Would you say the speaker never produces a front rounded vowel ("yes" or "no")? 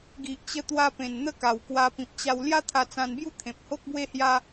yes